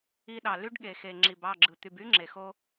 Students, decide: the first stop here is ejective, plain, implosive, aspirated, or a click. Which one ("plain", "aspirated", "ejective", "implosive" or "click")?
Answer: implosive